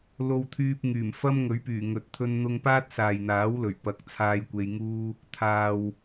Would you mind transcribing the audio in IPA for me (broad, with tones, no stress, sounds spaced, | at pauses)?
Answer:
l o˧ w t̪ʰ yː˧ p̚ ŋ yː˨˩ m f ɐ˥ m ŋ ɵ˨˥ ɥ p yː˨˩ ŋ ɵ˨ t̚ t̪ʰ ɵ˧ n n̪ ʊ˧ ŋ p aː˥ t̚ s aː˨ j n̪ aː˨˥ w l ɵ˨˩ ɥ p ɐ˨˥ k̚ t͡sʰ aː˧ j kʷ e˧ j ŋ uː˥ | t̪ʰ aː˨ w